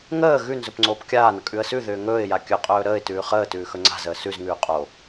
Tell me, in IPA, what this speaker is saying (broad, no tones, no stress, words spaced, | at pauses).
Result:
ŋəː ɣʉ nzɵpŋ͡ǀoːpkʲaːnə kʼʉə̯sʉðʏː ŋɵːɪ̯ja kʲɵqʼɵː ɾəːɪ̯tʉː χəːtʉː xɵŋ͡ǀa̤zəː sʉzŋʉː qʼo